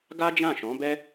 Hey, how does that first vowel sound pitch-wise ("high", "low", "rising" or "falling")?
high